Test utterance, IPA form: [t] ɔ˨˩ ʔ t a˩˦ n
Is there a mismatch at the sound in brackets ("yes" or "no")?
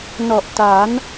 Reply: yes